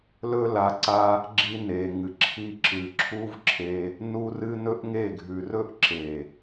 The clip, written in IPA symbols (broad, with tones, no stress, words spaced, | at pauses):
lɵ˦la˧ǀa˦ | ɡ͡ǁi˧ne˨ŋɨ˨ ǁʰi˧ǁɨ˨ ǁʰu˦vǁʰe˧ | nu˧rɨ˧ nɵ˦ʔŋe˦˨ ɡʱʉ˨rɵ˦ʔ ǁe˨